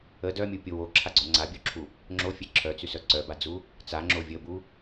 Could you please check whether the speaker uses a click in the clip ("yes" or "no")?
yes